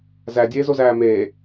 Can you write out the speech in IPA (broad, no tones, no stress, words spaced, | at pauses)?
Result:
zædʲeːzozæː meː